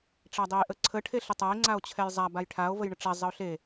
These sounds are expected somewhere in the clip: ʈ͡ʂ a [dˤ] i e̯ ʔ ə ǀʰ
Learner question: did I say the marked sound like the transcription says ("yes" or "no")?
yes